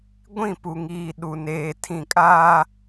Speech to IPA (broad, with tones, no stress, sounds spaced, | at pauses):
ɡʷ ĩ˦˨ p u˨ ŋ iː˨ ɗ u˨ n eː˨ tʰ ĩ˨ kʼ aː˦